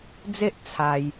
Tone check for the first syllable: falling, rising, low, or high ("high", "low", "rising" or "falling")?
high